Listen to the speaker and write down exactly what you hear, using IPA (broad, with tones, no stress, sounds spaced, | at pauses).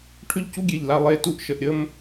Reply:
ʈʰ ʏ˥˧ ʎ c u˥ ɡʲ e˧˩ ʎ l a˧ lˠ e˧˩ t u˥ ʔ ʃ ə˧ ʔ ɾʲ ə˥ m